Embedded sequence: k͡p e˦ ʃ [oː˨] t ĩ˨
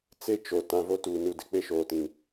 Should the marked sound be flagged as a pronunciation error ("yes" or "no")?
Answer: no